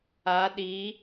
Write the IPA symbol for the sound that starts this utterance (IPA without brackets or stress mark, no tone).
a